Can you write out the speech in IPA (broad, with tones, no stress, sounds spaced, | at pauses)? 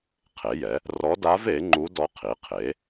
qʰ e˩˥ j ɛ˩˥ | r ɔ˧˥ d a˧˥ v e˩˥ ŋ͡ǃ u˧˥ d ɔ˧˥ qʰ i˩˥ qʰ e˩˥